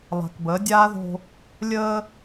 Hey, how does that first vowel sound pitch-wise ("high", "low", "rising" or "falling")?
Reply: low